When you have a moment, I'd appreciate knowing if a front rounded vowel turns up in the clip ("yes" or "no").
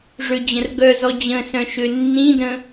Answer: yes